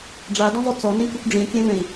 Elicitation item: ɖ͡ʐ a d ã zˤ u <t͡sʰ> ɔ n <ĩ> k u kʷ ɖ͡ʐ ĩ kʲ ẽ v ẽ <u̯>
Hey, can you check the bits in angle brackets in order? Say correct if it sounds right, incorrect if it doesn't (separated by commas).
incorrect, correct, incorrect